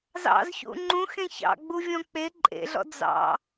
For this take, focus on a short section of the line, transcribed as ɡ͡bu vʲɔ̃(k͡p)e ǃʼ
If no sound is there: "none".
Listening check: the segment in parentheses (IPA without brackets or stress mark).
k͡p